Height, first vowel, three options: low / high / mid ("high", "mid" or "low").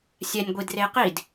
mid